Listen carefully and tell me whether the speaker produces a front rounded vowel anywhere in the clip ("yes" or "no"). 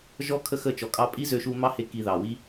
yes